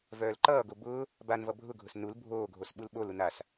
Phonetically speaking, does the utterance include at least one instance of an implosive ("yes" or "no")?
yes